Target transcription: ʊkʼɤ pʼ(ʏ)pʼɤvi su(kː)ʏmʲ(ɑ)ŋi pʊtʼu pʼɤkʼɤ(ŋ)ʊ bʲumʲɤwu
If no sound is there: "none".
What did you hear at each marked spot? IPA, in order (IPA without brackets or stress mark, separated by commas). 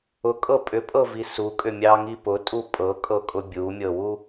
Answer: ʏ, kʼ, ɑ, kʼ